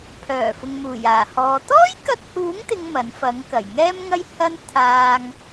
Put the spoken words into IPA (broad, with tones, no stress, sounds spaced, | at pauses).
pʰ œː˨˩ f ʊ˨ ŋ m uː˨˩ j aː˨˩ h ɔː˨˧ t̪ ɔː˥ j k ɐ˧ t̚ h uː˨˥ ŋ t̪ ɪ˥ ŋ m ɐ˨˥ n f ɐ˨˥ ŋ k ɐ˨˩ j ŋ ɛː˥ m ŋ ɐ˥ j h ɐ˥ n t̪ʰ aː˧ ŋ